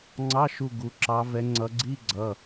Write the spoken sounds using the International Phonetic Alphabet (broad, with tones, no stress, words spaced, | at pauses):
ŋ͡ǀɑ˧˥˧ ʃu˦˨ɡu˩˧˩ ǁɑ˨˦vɛ˨˦ŋ͡ǀʌ˨˦ ɡ͡ǀi˧˥˧ɡ͡ǀʌ˩˧˩